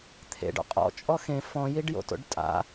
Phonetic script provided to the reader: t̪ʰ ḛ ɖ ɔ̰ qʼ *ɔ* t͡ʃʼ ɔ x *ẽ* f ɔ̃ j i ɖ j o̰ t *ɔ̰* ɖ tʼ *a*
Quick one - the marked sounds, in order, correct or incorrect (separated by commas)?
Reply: incorrect, correct, incorrect, incorrect